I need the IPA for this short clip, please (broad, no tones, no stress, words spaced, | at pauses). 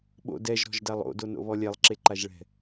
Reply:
ɓo̰ dɛʒ ɾɔ̤ʒdalˠo̰ dono̰βɔlʲɛlˠ ǁeǃaʒɭɛ̤